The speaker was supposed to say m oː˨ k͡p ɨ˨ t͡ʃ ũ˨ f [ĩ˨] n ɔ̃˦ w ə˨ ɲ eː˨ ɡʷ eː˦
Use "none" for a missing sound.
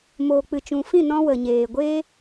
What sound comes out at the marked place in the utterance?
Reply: ĩ˦˨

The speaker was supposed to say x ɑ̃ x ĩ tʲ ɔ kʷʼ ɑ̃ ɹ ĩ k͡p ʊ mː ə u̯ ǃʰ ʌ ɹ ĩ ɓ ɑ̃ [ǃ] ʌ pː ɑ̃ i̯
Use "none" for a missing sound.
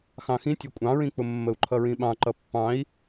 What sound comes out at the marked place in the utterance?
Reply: ǃ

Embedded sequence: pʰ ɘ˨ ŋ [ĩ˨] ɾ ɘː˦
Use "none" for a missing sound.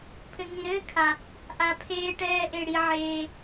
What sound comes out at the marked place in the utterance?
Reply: ĩ˨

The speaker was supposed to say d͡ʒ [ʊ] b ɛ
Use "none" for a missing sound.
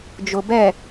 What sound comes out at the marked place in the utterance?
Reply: ʊ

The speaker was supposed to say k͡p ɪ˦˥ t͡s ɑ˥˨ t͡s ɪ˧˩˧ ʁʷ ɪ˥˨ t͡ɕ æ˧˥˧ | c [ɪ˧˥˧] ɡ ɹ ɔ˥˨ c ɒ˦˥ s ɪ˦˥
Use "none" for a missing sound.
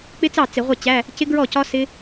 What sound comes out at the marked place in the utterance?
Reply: ɪ˦˥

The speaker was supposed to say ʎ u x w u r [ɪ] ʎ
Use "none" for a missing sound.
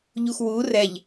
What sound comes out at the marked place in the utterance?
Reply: ɛ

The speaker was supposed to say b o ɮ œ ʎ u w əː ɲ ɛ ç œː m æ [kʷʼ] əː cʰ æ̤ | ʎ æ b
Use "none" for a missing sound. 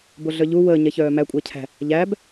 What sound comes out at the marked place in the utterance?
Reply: kʷʼ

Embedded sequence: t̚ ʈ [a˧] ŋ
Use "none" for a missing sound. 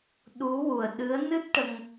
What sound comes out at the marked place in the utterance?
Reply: ə˧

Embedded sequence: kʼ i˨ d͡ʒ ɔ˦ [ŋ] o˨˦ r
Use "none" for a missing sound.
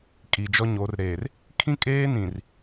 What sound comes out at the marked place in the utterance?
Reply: ɲ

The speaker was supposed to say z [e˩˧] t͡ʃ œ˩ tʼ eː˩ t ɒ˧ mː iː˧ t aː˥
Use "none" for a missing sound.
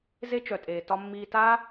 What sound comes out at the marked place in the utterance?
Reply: e˥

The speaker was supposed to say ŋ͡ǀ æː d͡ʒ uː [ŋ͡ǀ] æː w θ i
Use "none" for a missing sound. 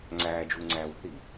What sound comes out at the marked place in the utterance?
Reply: ŋ͡ǀ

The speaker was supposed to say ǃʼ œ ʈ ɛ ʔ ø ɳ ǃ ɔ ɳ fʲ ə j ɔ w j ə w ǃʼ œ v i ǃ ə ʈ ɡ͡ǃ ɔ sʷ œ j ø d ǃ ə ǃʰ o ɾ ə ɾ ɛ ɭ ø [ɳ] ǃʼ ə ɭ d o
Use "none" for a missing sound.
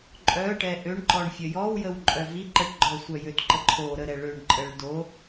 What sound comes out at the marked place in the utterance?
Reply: ɳ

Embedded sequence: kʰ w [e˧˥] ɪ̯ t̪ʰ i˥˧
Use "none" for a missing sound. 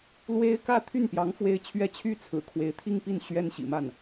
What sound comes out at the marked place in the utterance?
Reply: e˧˥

